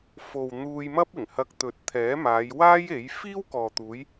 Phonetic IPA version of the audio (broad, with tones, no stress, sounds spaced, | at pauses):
f o˨ w n̪ uː˧ j m ɐ˥ p̚ ɪ˨˩ ŋ h ɐ˧ k̚ t̪ ɵ˨˥ t̚ t̪ʰ ɛː˨˥ m aː˨˧ j w aː˥ j e˨˥ j f iː˥ w k ɔː˨ t̪ uː˨˧ j